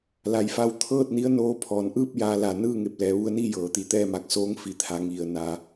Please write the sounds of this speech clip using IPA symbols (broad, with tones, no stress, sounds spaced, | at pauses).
l a˩˧ j f a˧ w t̪ʰ ɤː˥˨ t̚ n i˧˥ ə̯ n oː˧˥ pʰ ɔː˩˧ n ʔ ɯː˥˨ p̚ j aː˧˥ l a˧˩ n ɯː˥˨ ŋ e˧˩ p̚ l ɛː˩˧ ʋ u˧ ə̯ n iː˥˨ j ɤː˩˧ t̪ i˩˧ t̪ ɛː˥˨ m aː˧˩ k̚ s oː˧˥ ŋ f i˩ t̪ʰ a˩˧ ŋ i˩ ə̯ n a˩˧